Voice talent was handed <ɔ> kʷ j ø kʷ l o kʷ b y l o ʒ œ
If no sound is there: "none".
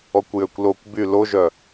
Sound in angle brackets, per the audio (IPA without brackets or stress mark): ɔ